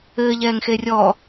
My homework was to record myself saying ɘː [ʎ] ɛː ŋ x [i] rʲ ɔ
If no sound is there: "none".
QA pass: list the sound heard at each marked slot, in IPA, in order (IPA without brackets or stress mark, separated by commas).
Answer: ʎ, e